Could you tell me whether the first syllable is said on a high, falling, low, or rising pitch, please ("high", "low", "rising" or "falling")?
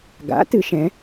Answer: rising